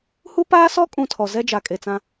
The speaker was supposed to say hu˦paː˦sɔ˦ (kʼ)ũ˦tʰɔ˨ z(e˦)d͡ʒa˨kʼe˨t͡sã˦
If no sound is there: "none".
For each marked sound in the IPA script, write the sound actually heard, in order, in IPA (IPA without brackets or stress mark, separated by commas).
kʼ, ɛ˦